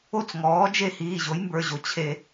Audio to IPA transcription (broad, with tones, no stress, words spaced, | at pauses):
o˥˩t͡sŋɔː˩˥d͡ʒe˥˩ hiː˩˧˩ʑo˩˥jmbə˞˩˧˩ʑo˩˥ t͡ɕʰe˧˩˧